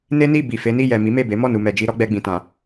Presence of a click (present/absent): absent